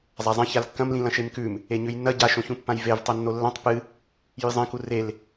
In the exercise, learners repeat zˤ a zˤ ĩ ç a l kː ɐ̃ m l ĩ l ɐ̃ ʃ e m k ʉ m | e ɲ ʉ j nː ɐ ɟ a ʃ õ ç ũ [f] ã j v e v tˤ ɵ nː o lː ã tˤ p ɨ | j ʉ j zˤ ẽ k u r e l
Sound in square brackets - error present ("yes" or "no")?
yes